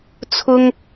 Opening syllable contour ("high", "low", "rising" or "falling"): high